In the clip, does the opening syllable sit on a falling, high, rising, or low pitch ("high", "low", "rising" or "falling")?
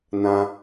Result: high